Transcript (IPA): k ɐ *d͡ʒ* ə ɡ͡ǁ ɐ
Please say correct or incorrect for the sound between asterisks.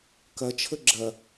incorrect